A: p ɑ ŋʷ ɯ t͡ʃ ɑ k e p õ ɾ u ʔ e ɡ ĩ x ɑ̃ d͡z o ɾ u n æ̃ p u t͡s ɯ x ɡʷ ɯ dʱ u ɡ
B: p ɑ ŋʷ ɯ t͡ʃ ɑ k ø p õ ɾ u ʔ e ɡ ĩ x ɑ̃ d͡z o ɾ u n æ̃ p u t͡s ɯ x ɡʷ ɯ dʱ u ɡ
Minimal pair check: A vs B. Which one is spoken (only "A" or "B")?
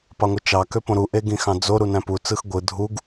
B